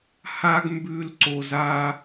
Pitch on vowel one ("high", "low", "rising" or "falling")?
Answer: high